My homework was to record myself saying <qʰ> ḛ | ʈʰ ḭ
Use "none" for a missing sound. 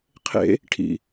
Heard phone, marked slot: qʰ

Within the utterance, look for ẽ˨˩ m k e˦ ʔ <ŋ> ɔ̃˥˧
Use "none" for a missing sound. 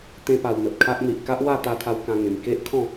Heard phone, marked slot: kʰ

